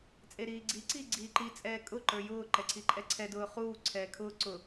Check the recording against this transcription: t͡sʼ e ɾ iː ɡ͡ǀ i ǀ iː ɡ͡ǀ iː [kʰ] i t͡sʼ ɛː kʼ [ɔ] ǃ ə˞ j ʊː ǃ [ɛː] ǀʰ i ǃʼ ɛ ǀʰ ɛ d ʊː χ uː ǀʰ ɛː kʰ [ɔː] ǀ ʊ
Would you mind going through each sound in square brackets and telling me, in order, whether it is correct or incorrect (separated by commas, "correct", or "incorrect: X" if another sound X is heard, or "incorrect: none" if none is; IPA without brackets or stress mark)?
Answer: incorrect: ǃ, incorrect: ʊ, incorrect: ɛ, incorrect: ʊː